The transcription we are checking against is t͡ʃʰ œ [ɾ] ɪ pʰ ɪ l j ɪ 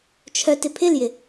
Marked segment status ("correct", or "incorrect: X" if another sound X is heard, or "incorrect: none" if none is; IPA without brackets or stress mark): incorrect: t